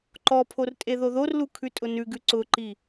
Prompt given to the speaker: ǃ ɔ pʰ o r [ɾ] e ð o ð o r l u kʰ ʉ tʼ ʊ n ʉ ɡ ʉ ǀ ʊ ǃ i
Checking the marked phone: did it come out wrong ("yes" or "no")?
yes